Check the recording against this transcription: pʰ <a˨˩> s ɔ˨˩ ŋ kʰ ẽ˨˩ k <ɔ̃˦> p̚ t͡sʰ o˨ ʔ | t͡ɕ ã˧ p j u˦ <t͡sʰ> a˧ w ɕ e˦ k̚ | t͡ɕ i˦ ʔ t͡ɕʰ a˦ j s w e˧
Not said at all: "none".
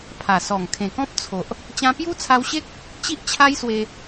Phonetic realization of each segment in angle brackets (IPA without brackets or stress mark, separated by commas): a˨˩, ɔ̃˦, t͡sʰ